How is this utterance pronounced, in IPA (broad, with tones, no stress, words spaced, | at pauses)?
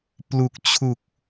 plu˨˩k̚t͡ɕʰu˨˩k̚